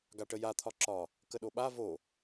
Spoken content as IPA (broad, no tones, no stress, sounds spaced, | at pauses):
ɡ a ʈ ə j a t̪ʰ ɒ ǁ ɒ | k ə ɗ o ɓ a v o